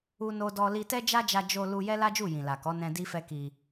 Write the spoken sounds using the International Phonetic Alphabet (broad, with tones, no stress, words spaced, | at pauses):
u˦no˦dɔ˦ li˧tɛ˦d͡ʒa˦d͡ʒa˧ d͡ʒo˧ lu˧ jɛ˦la˦d͡ʒu˦˨ jĩ˨la˨kɔ˨˦ nɛ̃˧ di˦fɛ˦ki˧